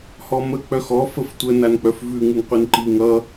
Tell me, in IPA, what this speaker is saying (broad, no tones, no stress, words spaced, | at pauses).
hɔmə k͡pœxɔ fəftʷə nank͡pœfvʉ ŋʉŋqʷinǃi ŋʌ